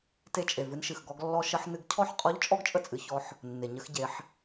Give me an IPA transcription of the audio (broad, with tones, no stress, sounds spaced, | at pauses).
t e˧ t͡ʃʼ e˩ v ɨ˧ n ʃ ɨ˩ x ɡ ɔ˧ ɡ lː ɔ˧ ʃ ə˧ ħ n ɨ˧ ɡ cʰ ɔ˥ ħ qʼ ɔ˧˥ ʎ t͡ʃʼ ɔ˥ ɡ t͡ʃʼ ə˥ t͡sʼ ɨ˩˧ ç ɔ˧ ħ | nː e˩ ɲ ə˧ x ɟ e˩˧ ħ